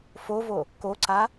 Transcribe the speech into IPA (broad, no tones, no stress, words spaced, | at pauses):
fovo | koǀa